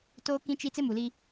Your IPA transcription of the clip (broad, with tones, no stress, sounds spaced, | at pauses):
t oː˦ k ĩ˦ t͡ʃ i˦ t͡s ɪ˦ m u˨ l i˦